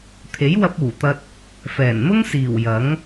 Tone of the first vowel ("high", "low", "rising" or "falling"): rising